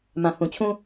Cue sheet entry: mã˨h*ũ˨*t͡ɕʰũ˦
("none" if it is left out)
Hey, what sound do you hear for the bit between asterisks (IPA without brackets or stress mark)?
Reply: ũ˨